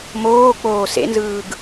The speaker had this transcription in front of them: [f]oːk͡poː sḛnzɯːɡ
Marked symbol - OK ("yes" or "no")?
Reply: no